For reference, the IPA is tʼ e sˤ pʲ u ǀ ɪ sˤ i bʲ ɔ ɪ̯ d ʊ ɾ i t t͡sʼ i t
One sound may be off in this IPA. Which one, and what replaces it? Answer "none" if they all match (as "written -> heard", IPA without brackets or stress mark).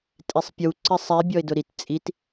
none